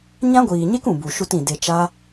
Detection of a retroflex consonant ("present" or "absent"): absent